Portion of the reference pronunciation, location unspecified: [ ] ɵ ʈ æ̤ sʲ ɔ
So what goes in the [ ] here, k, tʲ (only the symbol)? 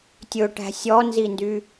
tʲ